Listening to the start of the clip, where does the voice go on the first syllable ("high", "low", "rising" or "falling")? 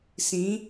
rising